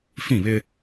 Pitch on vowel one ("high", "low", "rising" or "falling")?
falling